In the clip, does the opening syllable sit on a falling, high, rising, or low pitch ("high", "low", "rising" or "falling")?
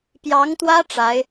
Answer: rising